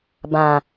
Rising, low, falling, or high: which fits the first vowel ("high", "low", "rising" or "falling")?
low